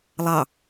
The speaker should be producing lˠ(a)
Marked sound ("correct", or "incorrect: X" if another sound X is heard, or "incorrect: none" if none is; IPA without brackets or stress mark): incorrect: ɑ